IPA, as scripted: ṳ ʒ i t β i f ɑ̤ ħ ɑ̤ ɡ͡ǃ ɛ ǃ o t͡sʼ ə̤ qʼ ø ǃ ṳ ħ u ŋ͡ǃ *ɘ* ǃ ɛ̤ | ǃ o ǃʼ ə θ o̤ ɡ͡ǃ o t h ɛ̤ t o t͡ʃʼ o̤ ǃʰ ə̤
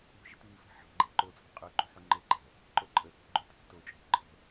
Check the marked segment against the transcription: correct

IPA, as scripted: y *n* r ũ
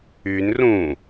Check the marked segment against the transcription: correct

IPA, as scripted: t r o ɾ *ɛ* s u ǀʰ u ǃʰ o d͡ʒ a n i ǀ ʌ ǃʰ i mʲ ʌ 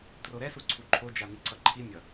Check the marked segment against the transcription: correct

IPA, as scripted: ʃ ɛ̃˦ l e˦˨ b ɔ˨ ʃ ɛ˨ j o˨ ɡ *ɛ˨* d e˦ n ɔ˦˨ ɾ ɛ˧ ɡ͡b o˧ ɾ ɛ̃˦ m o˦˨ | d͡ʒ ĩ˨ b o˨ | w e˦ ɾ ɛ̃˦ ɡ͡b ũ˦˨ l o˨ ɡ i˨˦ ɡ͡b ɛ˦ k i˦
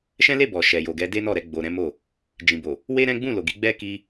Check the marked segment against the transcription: incorrect: ɛ˨˦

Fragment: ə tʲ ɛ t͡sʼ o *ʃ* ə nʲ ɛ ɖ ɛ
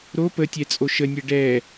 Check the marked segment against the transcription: correct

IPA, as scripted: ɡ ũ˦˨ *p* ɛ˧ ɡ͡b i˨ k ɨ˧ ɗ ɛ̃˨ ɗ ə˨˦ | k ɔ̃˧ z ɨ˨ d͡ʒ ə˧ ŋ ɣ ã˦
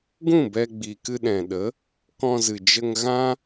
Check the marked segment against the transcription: incorrect: b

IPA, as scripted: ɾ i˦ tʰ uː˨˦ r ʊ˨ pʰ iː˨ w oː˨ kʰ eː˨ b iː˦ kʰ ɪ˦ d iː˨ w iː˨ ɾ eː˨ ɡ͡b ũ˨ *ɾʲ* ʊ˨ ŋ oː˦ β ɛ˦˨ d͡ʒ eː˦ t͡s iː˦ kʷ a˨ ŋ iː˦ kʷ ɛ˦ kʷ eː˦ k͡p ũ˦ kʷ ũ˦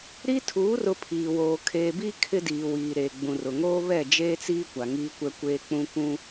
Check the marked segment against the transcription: incorrect: r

